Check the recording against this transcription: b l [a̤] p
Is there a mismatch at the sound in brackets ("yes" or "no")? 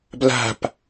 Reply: no